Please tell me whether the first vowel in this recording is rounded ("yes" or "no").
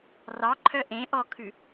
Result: no